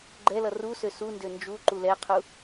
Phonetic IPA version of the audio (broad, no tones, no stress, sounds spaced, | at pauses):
ɡ͡ǃ ɛ l ʌ r u s ø s u n d ø n d͡ʒ u ǃ u l ɛ qʰ u